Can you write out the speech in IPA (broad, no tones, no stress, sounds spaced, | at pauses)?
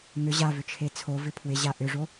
ŋ ʏ ʑ a v ʏ t͡ʃʰ e t͡sʰ o v ɪ pʰ w ɪ ʑ a ʔ ʏ ʐ o